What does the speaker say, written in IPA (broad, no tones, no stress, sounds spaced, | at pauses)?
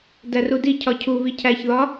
d æ r u d i cʰ ɒ cʰ u β i cʰ æ ç ð ɒ